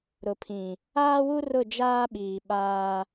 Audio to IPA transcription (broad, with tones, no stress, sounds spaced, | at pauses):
ɾ ʊ˨ pʰ ĩ˨ | aː˦ w u˦ r ʊ˦˨ d͡ʒ aː˦ ɓ iː˨ ɓ aː˦